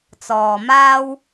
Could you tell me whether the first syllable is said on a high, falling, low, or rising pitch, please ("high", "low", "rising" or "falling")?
low